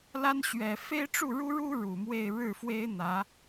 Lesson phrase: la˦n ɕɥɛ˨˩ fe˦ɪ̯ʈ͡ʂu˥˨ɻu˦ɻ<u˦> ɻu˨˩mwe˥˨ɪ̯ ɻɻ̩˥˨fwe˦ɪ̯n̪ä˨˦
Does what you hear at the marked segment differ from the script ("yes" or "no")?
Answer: no